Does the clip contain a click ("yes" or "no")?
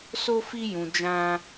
no